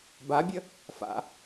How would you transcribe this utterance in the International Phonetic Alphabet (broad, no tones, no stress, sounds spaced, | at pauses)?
b a bʲ ə | f a̰